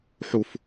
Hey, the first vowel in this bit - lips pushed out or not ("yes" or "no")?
yes